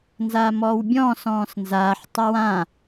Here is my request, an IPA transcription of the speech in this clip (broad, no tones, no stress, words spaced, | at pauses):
nzaːmɔːwbʲɔ̃ sɔ̃ːsnzaːħ tˤɜwã